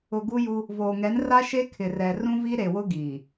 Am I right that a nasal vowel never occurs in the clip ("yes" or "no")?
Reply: no